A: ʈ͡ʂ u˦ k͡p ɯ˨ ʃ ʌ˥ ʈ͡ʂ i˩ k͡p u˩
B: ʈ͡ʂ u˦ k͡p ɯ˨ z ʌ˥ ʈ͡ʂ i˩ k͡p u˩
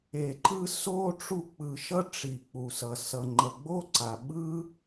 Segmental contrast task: A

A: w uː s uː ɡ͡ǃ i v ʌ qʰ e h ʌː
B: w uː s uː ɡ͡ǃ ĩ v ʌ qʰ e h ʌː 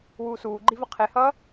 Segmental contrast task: A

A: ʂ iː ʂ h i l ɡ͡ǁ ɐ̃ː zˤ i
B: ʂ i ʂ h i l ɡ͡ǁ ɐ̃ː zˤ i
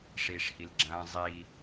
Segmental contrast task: A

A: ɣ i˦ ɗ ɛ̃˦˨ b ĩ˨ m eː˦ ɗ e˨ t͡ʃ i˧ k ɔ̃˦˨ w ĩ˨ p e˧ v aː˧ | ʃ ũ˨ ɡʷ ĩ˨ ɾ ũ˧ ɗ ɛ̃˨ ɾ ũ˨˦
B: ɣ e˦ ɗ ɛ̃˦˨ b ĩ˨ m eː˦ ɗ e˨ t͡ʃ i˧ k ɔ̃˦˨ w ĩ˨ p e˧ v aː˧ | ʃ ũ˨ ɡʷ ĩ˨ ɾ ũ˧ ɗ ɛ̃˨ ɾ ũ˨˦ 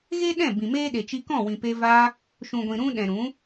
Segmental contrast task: B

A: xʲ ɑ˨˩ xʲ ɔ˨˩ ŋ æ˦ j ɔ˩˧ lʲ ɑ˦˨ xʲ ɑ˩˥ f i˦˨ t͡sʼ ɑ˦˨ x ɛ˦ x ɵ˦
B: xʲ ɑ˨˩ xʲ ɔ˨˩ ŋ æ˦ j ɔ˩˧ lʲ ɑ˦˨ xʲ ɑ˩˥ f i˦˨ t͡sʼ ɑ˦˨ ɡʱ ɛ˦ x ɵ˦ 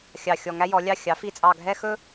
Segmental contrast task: B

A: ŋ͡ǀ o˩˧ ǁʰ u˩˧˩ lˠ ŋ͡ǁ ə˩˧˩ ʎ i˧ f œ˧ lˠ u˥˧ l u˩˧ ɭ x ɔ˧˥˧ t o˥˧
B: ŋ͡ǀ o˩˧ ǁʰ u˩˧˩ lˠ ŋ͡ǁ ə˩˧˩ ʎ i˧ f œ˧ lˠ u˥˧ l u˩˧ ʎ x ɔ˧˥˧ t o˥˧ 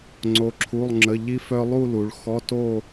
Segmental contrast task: A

